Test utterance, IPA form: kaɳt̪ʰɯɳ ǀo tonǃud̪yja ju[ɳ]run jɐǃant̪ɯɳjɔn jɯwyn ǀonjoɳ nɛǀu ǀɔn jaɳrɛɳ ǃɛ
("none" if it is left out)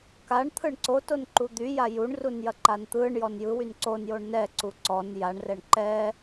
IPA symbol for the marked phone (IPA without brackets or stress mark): ɳ